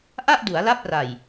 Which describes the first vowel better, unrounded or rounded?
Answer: unrounded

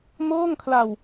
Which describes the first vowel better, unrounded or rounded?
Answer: rounded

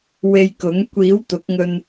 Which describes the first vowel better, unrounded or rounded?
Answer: unrounded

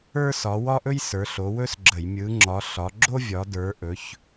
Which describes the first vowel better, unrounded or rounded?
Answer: unrounded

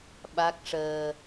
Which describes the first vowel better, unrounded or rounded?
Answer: unrounded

